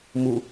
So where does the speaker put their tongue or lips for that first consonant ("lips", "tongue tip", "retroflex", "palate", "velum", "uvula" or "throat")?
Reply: lips